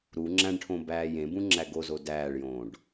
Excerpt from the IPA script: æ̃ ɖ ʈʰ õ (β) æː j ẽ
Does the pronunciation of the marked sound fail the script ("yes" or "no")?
yes